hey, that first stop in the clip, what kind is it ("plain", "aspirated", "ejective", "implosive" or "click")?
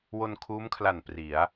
aspirated